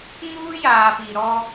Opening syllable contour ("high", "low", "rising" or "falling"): high